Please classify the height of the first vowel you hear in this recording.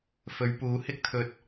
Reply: mid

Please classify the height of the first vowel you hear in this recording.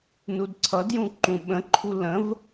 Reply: high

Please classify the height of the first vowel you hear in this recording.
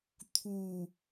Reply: high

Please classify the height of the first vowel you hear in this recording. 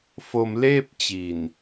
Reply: mid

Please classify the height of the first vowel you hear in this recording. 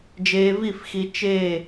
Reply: mid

